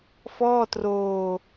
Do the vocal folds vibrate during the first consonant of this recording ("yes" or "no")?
no